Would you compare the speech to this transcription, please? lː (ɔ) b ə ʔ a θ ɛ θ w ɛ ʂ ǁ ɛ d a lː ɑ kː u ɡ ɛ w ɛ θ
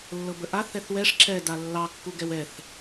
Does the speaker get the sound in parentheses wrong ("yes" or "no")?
yes